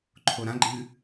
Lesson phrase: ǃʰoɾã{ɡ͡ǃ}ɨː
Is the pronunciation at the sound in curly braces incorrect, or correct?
correct